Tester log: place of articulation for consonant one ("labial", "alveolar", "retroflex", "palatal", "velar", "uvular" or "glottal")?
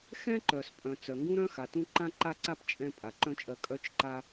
velar